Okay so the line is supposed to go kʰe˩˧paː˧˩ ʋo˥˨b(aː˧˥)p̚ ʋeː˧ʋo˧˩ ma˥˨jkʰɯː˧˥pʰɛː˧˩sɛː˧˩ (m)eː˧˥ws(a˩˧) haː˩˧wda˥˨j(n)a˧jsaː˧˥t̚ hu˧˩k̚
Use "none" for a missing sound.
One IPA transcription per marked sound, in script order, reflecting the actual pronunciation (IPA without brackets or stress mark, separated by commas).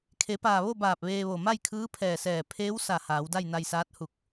aː˧˩, pʰ, a˧˩, n